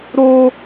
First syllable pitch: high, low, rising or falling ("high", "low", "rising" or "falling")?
high